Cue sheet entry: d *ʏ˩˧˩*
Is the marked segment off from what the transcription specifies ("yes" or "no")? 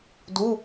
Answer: yes